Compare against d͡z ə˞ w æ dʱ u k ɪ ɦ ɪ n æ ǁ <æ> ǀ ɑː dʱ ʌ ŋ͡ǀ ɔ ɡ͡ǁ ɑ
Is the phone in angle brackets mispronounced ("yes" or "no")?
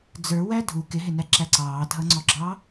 no